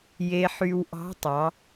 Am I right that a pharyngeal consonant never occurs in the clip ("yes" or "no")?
no